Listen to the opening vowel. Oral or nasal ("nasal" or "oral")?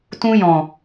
nasal